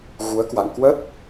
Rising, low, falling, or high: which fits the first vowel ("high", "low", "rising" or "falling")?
rising